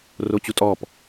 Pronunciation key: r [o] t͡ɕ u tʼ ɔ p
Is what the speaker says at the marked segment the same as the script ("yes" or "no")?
yes